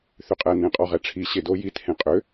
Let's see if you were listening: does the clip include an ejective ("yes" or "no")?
yes